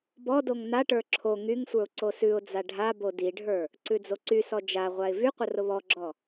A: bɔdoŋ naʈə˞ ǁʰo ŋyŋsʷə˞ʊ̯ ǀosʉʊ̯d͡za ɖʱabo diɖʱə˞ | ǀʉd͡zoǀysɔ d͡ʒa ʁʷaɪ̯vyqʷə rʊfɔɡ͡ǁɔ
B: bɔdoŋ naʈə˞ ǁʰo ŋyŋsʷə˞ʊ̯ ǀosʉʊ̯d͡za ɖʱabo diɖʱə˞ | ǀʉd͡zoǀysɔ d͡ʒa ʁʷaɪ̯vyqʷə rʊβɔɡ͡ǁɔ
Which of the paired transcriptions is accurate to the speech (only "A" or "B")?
B